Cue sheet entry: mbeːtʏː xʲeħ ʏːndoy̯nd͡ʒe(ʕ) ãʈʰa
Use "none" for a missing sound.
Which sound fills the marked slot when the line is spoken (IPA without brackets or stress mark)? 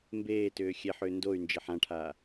ħ